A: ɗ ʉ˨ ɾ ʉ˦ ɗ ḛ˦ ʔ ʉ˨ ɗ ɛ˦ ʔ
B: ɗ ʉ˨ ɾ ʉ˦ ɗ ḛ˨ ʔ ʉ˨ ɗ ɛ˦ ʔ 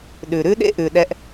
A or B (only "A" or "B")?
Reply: A